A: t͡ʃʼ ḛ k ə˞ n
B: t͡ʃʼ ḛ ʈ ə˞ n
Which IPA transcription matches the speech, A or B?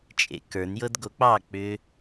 A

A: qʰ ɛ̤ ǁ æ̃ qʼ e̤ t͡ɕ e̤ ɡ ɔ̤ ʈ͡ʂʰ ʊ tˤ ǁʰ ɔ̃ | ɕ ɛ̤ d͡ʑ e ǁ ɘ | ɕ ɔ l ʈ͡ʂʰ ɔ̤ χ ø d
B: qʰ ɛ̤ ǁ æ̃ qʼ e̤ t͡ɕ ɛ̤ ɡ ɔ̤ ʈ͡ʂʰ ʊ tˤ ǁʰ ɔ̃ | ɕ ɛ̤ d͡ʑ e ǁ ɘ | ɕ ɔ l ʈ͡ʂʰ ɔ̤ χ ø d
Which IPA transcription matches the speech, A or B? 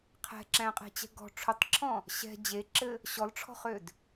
B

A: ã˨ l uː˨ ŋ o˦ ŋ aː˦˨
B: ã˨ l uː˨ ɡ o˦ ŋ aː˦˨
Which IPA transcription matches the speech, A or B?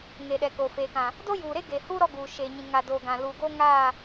B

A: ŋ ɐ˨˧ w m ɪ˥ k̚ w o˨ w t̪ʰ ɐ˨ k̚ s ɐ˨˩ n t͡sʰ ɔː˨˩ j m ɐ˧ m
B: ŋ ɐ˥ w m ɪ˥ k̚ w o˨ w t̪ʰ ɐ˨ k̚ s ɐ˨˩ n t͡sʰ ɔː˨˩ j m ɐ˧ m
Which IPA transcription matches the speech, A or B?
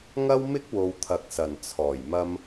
B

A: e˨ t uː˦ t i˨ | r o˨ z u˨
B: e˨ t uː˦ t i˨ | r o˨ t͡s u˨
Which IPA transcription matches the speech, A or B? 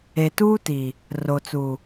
B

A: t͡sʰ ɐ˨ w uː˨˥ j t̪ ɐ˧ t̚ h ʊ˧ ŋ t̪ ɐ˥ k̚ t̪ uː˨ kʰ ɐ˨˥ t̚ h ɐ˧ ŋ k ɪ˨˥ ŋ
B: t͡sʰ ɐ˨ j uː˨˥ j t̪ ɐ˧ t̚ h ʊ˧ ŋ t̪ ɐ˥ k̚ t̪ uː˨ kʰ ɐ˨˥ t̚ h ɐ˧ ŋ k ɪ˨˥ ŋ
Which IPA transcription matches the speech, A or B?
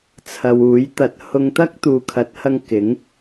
A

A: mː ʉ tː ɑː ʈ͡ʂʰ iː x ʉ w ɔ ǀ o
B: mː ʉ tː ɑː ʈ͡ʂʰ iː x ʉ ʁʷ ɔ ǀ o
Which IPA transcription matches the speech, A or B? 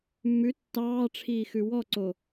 A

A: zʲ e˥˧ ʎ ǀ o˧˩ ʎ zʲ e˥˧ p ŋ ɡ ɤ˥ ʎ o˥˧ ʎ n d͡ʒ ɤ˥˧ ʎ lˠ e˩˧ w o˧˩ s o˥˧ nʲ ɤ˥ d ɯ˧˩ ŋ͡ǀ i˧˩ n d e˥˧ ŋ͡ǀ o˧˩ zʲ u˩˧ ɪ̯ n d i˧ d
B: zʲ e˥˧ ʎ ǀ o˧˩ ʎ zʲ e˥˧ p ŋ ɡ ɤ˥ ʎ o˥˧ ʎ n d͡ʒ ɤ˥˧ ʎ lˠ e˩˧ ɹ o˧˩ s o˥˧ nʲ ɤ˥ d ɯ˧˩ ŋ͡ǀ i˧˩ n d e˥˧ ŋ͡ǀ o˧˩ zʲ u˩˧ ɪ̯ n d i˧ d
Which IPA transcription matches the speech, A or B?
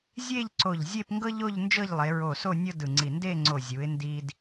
B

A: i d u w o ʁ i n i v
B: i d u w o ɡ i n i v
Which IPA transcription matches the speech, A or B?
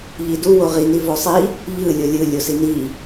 A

